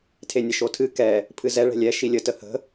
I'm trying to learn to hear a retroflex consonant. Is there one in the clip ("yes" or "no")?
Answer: yes